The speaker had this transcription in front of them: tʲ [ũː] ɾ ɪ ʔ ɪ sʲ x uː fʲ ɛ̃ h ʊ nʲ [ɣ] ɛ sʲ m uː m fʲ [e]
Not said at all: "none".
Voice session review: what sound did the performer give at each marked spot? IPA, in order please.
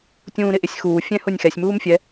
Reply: ũː, x, ɛ

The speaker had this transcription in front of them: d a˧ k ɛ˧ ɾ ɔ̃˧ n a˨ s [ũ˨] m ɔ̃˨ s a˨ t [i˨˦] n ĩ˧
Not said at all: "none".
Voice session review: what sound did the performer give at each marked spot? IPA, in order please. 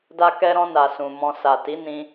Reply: ũ˨, i˨˦

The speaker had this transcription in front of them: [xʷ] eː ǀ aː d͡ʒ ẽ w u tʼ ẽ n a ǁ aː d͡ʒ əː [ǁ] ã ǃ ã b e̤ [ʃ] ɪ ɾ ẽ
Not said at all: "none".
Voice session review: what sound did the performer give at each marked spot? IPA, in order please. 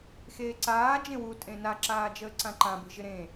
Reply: x, ǀ, ʒ

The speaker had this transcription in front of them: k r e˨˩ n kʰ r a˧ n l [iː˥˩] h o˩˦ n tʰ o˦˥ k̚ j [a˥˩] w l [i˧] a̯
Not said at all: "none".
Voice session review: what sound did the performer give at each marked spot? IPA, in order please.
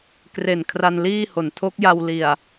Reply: iː˥˩, a˧, i˨˩

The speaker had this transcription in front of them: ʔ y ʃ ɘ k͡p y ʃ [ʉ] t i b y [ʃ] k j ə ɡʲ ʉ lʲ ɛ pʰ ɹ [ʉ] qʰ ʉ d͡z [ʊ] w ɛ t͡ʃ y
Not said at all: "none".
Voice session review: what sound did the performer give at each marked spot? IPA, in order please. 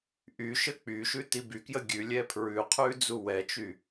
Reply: ʉ, none, ʉ, u

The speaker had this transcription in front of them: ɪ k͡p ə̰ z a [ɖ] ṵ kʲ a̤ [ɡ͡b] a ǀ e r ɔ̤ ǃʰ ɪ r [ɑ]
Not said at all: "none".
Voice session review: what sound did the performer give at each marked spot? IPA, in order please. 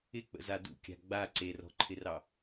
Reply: d, ɡ͡b, ɑ

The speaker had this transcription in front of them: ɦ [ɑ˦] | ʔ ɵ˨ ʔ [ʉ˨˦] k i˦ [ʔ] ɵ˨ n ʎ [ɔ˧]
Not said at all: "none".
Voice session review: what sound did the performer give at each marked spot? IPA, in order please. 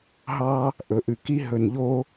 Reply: ɑ˦, ʉ˨, ɦ, o˧

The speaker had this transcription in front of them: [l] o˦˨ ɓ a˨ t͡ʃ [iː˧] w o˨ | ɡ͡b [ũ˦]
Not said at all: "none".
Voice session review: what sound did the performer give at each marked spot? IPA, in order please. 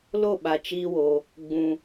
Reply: l, iː˧, ũ˨

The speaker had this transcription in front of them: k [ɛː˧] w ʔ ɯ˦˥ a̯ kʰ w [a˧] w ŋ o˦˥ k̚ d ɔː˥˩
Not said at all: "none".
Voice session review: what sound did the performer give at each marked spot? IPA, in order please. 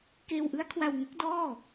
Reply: eː˧, a˧

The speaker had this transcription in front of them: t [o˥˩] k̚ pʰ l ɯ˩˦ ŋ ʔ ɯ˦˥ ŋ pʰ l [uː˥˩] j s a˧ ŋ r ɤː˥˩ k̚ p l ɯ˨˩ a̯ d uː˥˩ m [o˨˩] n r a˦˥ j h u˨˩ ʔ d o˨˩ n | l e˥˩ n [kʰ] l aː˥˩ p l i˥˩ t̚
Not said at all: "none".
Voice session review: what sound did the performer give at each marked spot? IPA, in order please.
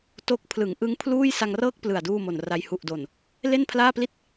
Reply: o˥˩, uː˥˩, o˨˩, pʰ

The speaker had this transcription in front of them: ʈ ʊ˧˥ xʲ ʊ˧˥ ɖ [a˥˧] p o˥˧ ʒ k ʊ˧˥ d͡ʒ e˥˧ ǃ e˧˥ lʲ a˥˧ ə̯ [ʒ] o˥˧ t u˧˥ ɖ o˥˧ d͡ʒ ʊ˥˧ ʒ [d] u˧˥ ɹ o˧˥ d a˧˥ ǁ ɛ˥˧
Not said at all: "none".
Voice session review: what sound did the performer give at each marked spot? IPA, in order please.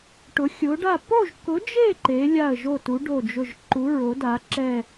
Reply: a˥˧, ʒ, ǃ

